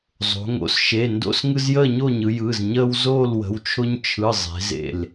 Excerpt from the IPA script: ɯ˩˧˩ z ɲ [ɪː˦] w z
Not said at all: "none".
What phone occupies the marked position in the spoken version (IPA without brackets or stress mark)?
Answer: əː˦